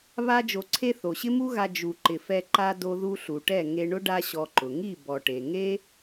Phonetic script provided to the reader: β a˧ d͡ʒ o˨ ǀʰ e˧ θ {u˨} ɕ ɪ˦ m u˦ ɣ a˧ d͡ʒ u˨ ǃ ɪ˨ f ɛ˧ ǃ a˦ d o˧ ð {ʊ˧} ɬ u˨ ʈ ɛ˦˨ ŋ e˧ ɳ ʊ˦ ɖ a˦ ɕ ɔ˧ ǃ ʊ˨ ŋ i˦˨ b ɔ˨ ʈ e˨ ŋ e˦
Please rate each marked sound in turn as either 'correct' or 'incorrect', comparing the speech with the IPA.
incorrect: o˨, incorrect: u˧

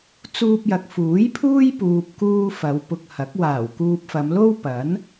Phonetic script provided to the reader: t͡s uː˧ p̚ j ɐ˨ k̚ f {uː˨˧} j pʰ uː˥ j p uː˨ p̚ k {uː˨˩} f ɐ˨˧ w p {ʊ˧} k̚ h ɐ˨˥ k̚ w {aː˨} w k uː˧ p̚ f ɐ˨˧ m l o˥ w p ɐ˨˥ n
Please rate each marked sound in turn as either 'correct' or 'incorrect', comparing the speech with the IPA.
incorrect: uː˨˥, incorrect: uː˧, correct, incorrect: aː˨˩

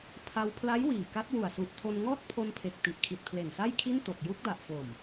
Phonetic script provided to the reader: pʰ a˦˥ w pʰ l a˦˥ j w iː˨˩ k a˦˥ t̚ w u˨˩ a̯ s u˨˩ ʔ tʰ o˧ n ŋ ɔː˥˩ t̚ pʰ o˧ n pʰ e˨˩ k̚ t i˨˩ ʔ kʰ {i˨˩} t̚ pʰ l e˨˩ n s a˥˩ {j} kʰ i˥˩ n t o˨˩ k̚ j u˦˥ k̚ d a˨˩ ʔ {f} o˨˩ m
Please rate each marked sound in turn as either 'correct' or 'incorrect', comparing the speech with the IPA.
correct, correct, correct

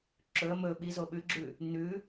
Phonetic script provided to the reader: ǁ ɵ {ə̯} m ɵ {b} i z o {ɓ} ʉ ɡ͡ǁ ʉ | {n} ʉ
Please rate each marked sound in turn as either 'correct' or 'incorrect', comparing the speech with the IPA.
correct, incorrect: ɓ, correct, correct

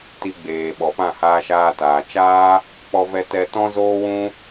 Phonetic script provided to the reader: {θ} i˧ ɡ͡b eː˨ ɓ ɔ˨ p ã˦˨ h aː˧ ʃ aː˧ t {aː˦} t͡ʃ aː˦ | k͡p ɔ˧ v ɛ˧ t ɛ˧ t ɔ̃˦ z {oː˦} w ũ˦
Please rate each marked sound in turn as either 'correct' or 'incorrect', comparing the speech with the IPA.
incorrect: t, incorrect: aː˨, correct

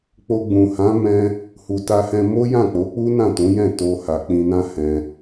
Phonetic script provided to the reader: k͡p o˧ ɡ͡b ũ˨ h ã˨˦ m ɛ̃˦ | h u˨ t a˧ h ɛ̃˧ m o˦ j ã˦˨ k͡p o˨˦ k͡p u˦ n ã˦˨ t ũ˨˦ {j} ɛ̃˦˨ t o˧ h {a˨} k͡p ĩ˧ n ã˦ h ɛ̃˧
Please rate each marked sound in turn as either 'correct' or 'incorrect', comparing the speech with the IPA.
correct, correct

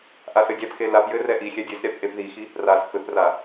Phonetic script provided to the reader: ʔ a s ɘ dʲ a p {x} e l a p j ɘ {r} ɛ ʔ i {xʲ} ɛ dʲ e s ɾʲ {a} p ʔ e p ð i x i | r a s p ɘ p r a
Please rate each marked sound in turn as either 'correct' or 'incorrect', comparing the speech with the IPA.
correct, correct, correct, correct

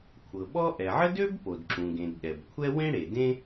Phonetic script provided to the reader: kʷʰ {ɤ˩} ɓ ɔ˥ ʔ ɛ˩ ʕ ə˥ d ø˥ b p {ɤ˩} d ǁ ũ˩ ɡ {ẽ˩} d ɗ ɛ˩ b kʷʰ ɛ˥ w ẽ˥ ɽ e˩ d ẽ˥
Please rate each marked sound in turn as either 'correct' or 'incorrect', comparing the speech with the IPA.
correct, incorrect: o˩, correct

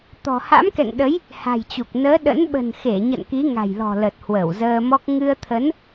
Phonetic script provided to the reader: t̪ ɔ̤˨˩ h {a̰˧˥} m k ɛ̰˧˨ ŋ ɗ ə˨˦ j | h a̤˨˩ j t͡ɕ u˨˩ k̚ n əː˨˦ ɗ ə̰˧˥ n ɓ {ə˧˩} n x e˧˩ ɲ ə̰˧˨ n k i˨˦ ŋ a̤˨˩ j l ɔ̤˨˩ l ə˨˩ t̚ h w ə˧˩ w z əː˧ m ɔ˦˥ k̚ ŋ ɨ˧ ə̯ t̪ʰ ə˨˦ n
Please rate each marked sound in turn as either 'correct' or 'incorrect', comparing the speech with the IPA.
correct, incorrect: ə̤˨˩

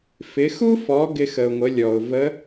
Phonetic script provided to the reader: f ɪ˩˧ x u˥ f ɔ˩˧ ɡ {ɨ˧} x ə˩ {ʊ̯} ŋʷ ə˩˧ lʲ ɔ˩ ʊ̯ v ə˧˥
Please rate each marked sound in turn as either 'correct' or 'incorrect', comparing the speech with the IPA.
incorrect: ɪ˧, correct

